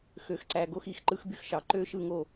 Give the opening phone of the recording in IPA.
x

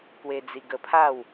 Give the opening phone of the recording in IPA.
k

